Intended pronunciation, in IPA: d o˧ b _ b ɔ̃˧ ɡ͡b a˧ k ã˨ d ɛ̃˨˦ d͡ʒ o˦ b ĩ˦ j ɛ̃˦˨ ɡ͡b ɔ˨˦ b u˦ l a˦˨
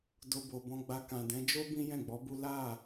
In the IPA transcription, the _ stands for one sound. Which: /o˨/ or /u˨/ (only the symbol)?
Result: o˨